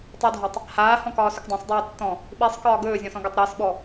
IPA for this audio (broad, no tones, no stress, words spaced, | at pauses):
tˤɪdʱɒtˤ | haːhɔ̃kɒːsɵk dˤãsˤdˤiː tːɔ̃ | ɓisˤkɒː ɡɵːzʲɔ̃sɔ̃ɡatˤ ɾɪːsɓɔ